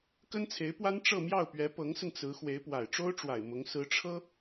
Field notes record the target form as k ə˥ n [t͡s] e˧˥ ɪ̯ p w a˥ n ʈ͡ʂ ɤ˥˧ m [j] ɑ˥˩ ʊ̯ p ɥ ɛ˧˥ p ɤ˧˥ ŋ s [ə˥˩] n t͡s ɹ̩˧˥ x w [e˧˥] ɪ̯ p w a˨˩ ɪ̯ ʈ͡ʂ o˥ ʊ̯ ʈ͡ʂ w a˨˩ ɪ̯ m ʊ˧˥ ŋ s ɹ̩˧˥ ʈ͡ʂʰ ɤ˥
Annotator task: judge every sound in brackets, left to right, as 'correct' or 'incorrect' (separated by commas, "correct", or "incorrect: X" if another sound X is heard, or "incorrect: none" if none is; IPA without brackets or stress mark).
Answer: incorrect: t͡sʰ, correct, incorrect: ə˧, correct